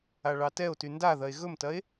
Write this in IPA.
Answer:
a ɭ ɑ t ɛ o̯ t y n d a ð ɐ e̯ ɣ ɵ m t ɐ e̯

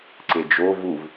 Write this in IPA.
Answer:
ǀ e d͡ʒ o v u v

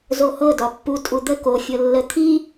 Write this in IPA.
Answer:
z o h ɤ d ɒ pː u tʼ u d̪ ə k o fʲ ɤ lː ə t̪ʰ i

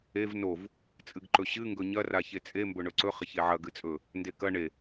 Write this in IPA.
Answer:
e v n o v | t͡sʼ ɨ ɡ ǃ ɵ ɕ ɨ ŋ ɡ ɵ ɲ ɐ r a ç e t͡sʼ e m b ɵ ɳ ɵ ǀ ɵ χ ɐ ç e ʕ ɐ ɡ ɨ t͡sʼ ɵ | n d e k ɐ ɳ e

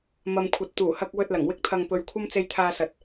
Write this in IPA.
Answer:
m ɐ˨ m kʷʰ ɐ˨ t̚ t̪ uː˨˩ h ɐ˧ k̚ w ɵ˧ t̚ l ɐ˨˩ ŋ w ɪ˥ k̚ t̪ʰ ɐ˧ ŋ p ɵ˧ ɥ kʷʰ ɐ˥ m t͡s e˧ j t̪ʰ aː˧ s ɐ˨ t̚

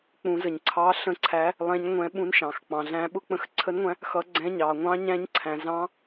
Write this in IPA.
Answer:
k͡p ũ˩˧ z ə˩˧ ɲ ǀʰ ɑ˧˥ ɬ ə̃˧˥ ǀʰ æ˧˥ | lˠ ɛ̃˧˥ ɲ ŋʷ ɛ̃˧˥ ɓ ũ˧˥ n ʃ ɑ̃˩˧ x k͡p ɑ̃˩˧ ɮ æ̃˧˥ ɓ ʊ˧˥ k͡p ə̃˧˥ x ǀʰ ə˧˥ n ŋʷ æ̃˧˥ | x ʌ˧˥ ɡ͡ǀ ɛ̃˧˥ ɲ ɑ˩˧ ŋʷ ɑ̃˧˥ ɲ æ̃˧˥ ɲ ǀʰ æ̃˩˧ z ɑ̃˧˥

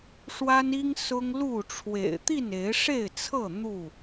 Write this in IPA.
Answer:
ʂ w a˦ n i˦ ŋ s ʊ˦ ŋ l u˥˨ ʈ͡ʂʰ w ḛ˨˩ ɪ̯ t̪ i˥˨ n e˨˦ ɪ̯ ʂ e˥˨ ɪ̯ t͡sʰ ɤ˥˨ n̪ u˥˨

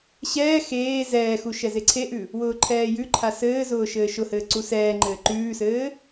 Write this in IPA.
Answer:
ɕ ɛː x eː z ɛː x u ʃ ɛ z e ǀʰ e ʔ ʉ | w ʊː ǃʰ ɛː j ʉ ǃʰ a s ɘː z ʊː ʃ ɘː ʃ ʊ h ɘː ǀ u s ɛː ŋ͡ǃ ɘː ǃ ʉː s ɘː

